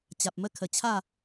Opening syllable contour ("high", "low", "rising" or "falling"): low